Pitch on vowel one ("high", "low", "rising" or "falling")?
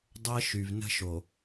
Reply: high